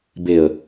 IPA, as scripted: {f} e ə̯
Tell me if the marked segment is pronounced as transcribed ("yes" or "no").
no